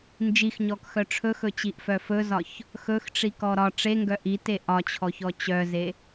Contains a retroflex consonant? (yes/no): yes